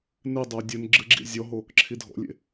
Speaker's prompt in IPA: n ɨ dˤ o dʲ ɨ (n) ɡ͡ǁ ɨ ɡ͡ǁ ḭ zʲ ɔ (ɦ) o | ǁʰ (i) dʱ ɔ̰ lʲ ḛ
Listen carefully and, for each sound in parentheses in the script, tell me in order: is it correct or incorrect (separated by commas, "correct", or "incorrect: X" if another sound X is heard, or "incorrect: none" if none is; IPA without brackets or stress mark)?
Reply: correct, correct, correct